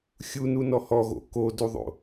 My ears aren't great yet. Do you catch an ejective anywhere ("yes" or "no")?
no